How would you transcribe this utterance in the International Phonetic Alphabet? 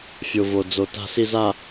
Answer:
fʲ o˨ v o˨ d͡z o˨ t a̤˨ s i˨ z a˨

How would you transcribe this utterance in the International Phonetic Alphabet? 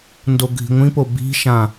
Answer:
n d o ɡʱ i̤ ŋʷ ĩ p o b i̤ ʃ ã

